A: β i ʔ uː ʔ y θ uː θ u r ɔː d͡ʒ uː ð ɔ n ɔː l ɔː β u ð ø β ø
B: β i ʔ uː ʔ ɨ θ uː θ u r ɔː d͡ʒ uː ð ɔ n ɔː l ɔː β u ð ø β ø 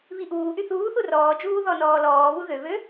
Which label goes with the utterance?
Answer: A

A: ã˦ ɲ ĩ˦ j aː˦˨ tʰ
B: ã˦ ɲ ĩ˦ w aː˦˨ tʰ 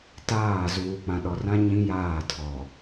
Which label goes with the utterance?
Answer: A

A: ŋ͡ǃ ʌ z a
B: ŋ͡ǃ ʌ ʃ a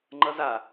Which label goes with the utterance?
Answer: A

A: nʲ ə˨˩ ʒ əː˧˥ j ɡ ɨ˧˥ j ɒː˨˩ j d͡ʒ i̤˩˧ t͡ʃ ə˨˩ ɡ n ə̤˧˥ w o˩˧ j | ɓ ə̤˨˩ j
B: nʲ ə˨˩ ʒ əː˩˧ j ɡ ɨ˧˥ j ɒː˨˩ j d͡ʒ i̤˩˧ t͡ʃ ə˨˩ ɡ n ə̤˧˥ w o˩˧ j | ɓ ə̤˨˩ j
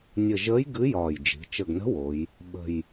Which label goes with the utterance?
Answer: A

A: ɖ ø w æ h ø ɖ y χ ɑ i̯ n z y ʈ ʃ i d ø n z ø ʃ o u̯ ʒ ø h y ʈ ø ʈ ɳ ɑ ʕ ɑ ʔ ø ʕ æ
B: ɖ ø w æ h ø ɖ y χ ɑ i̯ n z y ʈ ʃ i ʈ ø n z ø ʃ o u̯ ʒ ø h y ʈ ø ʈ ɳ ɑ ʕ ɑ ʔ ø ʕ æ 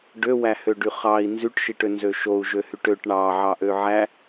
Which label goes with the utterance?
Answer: B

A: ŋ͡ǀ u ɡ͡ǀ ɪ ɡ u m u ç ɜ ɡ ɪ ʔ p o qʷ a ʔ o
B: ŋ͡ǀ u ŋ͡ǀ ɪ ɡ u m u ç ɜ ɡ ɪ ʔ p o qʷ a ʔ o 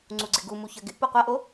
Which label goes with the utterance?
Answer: A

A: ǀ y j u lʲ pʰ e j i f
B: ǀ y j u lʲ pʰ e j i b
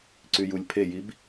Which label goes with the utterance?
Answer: B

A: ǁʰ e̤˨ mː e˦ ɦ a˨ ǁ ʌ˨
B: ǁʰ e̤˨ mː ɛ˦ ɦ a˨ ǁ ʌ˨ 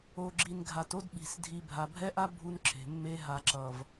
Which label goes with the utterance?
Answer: A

